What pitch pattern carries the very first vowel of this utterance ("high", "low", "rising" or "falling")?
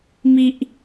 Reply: low